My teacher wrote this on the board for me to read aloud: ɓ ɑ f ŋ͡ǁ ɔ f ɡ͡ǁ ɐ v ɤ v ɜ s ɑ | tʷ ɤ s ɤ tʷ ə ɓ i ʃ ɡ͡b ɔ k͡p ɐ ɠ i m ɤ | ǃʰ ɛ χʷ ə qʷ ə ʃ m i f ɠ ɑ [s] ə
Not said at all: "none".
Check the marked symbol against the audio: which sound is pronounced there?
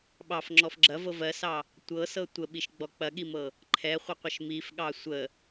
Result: sʷ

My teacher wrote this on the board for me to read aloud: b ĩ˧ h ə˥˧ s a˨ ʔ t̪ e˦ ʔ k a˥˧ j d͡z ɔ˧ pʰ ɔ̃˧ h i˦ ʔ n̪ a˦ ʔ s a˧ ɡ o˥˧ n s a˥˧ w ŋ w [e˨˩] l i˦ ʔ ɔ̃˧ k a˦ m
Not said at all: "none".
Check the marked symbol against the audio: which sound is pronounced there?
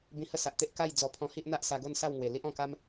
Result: e˨˩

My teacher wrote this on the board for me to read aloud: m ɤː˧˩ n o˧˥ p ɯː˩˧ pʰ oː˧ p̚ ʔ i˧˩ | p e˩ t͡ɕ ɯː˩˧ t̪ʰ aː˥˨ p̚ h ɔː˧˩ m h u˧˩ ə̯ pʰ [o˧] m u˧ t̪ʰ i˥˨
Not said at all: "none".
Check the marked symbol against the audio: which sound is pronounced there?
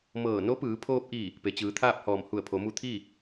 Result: o˩˧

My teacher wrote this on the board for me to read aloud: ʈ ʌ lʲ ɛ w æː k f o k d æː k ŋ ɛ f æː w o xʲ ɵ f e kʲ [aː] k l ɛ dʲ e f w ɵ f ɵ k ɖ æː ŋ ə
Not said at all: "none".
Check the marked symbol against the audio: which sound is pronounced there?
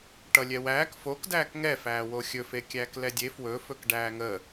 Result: æː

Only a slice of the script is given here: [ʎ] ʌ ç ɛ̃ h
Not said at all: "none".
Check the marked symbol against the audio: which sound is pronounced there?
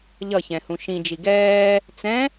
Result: ʎ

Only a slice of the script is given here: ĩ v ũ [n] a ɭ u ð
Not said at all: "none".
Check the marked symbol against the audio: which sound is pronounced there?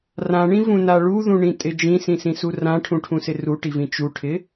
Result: n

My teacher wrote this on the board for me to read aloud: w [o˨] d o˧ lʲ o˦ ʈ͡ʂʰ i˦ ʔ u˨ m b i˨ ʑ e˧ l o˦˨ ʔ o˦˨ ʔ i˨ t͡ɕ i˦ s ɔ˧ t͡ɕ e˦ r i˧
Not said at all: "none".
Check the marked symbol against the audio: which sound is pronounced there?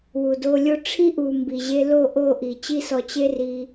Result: u˨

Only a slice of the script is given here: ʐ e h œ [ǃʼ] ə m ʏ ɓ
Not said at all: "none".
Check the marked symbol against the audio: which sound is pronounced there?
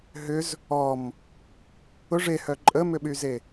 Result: ǃʼ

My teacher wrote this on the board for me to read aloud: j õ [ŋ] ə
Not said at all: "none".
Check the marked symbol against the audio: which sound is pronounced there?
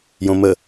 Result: m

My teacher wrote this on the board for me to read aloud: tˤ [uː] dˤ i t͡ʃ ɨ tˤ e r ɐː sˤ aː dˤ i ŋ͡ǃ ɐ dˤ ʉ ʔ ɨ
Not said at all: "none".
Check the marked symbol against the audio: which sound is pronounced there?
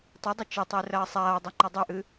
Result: u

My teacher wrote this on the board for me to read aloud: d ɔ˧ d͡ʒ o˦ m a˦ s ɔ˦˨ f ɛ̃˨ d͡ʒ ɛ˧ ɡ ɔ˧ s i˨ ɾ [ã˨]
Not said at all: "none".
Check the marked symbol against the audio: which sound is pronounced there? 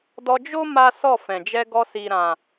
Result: ã˨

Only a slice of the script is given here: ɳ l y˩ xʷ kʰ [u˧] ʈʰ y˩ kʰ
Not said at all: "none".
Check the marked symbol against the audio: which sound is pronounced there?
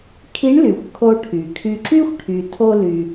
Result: o˧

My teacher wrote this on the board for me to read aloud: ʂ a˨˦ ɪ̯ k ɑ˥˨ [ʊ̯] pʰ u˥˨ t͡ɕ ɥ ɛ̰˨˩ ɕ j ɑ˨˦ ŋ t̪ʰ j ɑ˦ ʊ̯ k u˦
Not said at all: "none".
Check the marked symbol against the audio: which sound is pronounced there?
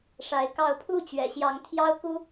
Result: ʊ̯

